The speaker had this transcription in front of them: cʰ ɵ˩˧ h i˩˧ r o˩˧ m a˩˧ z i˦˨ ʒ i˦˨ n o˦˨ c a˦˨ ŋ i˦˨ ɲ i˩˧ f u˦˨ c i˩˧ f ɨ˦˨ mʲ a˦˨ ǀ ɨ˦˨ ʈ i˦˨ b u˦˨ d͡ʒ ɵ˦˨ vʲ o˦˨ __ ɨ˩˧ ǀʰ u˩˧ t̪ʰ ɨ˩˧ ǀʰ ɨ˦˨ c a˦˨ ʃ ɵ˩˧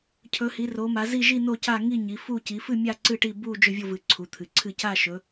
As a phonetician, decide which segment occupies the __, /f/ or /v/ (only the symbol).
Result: v